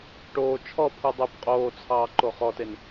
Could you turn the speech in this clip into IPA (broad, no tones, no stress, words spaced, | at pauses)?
ʈoː t͡ʃʰɔpʰu dˤubqʼoːt͡sʰɑː ǃoχɔten